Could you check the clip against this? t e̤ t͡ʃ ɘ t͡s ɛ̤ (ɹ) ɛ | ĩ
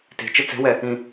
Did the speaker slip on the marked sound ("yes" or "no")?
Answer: yes